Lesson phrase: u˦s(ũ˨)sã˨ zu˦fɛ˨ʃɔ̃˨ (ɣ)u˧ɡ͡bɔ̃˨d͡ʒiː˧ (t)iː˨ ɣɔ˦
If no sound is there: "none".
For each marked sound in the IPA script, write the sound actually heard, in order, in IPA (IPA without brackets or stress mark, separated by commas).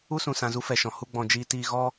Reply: ũ˨, h, t